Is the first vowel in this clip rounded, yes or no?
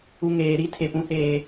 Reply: yes